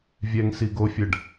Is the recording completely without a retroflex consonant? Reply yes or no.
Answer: no